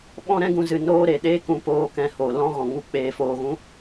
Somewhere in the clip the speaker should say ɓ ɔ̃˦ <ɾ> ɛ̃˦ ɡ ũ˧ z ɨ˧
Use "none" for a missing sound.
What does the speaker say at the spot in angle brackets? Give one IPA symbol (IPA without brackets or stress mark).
ɾ